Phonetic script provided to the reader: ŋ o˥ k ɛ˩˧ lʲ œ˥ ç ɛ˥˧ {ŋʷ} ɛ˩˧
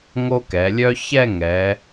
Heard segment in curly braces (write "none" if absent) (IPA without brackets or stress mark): ŋ